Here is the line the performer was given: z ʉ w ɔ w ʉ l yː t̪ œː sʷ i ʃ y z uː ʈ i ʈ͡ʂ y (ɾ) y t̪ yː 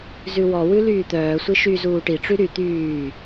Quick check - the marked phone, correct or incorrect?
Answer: correct